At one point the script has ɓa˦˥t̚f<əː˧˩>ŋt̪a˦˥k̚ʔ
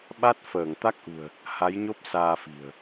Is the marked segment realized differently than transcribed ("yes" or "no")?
no